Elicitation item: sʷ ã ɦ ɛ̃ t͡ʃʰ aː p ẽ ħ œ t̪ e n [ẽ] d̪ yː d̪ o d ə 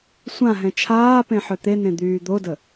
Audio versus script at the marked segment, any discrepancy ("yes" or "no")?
no